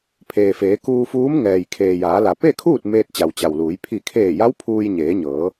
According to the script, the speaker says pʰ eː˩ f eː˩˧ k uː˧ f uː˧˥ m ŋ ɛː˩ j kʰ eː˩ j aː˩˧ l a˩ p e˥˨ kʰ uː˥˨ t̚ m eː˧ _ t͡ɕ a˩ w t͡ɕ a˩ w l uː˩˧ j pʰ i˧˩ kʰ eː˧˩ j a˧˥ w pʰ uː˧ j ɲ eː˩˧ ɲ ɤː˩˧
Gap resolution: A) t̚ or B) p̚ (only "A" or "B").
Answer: A